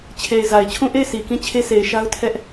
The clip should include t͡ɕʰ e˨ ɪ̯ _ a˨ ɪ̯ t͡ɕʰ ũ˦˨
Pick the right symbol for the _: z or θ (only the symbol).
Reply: z